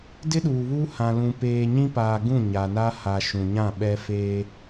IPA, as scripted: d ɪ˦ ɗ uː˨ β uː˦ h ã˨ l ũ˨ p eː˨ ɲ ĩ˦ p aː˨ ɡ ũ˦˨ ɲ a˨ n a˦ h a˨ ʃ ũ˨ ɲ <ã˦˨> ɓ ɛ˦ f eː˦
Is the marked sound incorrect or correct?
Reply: correct